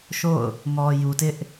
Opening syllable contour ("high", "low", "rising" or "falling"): falling